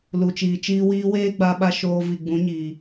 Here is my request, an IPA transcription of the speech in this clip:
l u˨ t͡ʃ iː˨ t͡ʃ iː˦ w iː˧ w eː˦ ɡ͡b a˧ ɓ a˧ ʃ oː˧ v i˨ ɡ͡b ũ˨˦ ɲ iː˨

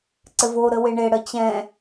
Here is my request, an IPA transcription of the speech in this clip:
ǀ ɘ v o ɾ ə w e ɳ e ɽ ə t͡ɕ ɛ̃

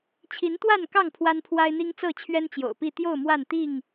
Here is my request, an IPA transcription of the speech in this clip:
t͡ɕʰ i˨˦ n t̪ w a˥˨ n k ɑ˥˨ ŋ pʰ w a˦ n pʰ w a˦ ɪ̯ n̪ i˦ ŋ t͡s ɤ˥˨ t͡ɕʰ ɥ ɛ˦ n t͡ɕ j o̰˨˩ ʊ̯ p i˥˨ t̪ j o˥˨ ʊ̯ m w a˥˨ n t̪ i˥˨ ŋ

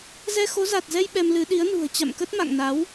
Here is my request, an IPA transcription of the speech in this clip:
z ɛ˧ x o˨˦ z a˨˩ t̚ z ɛ˧ j ɓ ɛ˧ m l ɨ˨˦ ɗ i˨˦ ə̯ n ṳ˨˩ ə̯ t͡ɕ a̰˧˨ m k ə˦˥ t̚ m a̰˧˨ ŋ n a˨˦ w

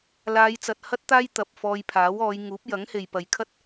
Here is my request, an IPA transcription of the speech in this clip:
l aː˨˧ j t͡s ɐ˨ t̚ h ɐ˥ t̚ t̪ aː˥ j t̪ ɐ˨ p̚ f ɔː˧ j pʰ aː˨˥ w ɔː˨˧ j ŋ uː˨˥ p̚ j ɐ˨˥ ŋ h e˨ j p ɐ˨ j kʰ ɐ˥ t̚

